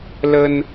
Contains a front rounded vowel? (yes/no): no